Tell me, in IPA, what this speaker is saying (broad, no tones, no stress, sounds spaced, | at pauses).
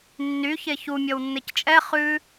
nː y ç e ç u mʲ ɔ w nː e c t͡ʃʼ ɛ χ ʉ